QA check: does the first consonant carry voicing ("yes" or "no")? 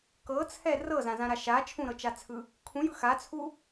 no